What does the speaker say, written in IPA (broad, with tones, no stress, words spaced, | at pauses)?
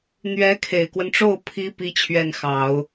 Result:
n̪ɥɛ˧˥kʰe˨˩ɪ̯kwə˦nʈ͡ʂo˥˩ʊ̯ pʰi˥ pi˥t͡ɕʰɥɛ˥˩nxɑ˨˩˦ʊ̯